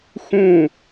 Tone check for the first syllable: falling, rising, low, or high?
falling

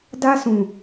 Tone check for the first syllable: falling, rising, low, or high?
high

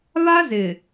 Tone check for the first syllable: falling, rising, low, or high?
high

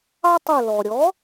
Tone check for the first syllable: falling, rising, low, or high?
high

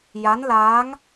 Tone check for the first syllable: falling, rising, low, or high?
rising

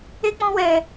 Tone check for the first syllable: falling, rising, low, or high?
high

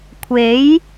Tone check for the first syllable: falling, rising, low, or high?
rising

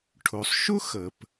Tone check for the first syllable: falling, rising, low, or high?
low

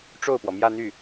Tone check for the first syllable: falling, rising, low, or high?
falling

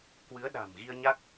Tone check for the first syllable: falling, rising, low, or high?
rising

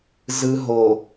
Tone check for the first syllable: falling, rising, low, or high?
low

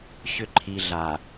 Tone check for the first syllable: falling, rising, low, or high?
low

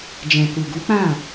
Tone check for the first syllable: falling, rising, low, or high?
low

